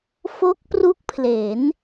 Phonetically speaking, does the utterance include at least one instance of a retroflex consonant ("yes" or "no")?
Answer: no